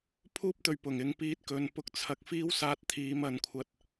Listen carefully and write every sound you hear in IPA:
pʰuː˥p̚t̪ɵ˨ɥpʊ˨˩ŋ ɪ˨˧ŋpiː˧t̚ kɵ˨˧n pʊ˧k̚t͡sʰɐ˨˥k̚fiː˥w saː˧t̚t̪ʰiː˨˧mɐ˨˧n kʷʰɐ˧t̚

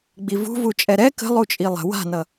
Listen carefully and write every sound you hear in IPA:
ɡ͡bivṳvu t͡ʃʼɛɾɛ kə̤ lˠut͡ʃʼilˠə̤ wa̤nʌ

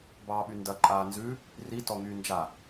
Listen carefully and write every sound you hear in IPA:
bɑːɓyndɐ ǃʼaːnzʉ | ri tɔŋyːnd͡ʒa

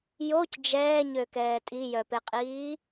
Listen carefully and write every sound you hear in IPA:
joc d͡ʒɛːɲøkɛː tʼijœpeqʼiː

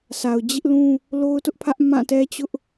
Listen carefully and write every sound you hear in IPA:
sa˨ʊ̯d͡ʑɪ˦ʔlũ˦ | lo˦ʊ̯tʊ˦ʔpʰä˦ʔ mã˦˨tɛ˦t͡ɕʊ˦ʔ

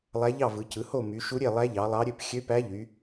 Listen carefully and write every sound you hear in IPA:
lˠæ˧˥ʎɑ˥˨vɯ˩˧cɯ˩˧ ho˥˨ my˩˧ʃu˧˥ɾʲe˥˨ lˠæ˧˥ʎɑ˩˧ lˠɑ˧˥ɾʲø˥˨p xʲø˧˥pæ˧˥ ʎy˩˧

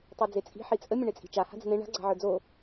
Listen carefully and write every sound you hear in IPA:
tˤid͡zet͡sʼi̤ ħit͡sʼə mʲə̃ɳet͡sʼi̤t͡ʃa ha̤d͡zə̤nẽ ɳa̤ ɡ͡ǀa̤ʕə˞d͡zo

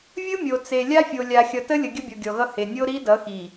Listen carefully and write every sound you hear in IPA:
vʲɯ˦mʲo˨ t͡se˨ lʲa˦fʲo˨ lʲa˨xʲʌ˨tə˦lʲə˨ ɡʲə˦bʲɔ˨ɡʲɔ˨ɣʌ˦ he˨ nʲo˦ɾi˦ dʌ˨˦xi˨

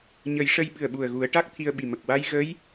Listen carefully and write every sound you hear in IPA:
ɲə˨˩˦jʂə˧j ɓɨ˨˩ə̯ɓu˨˩ə̯ ɣu˨˩˦ə̯ʈa˦˥k̚ t̪ʰi˧ə̯ ɓi˨˩mə˨˩k̚ wa˧j ɣə˧˥j

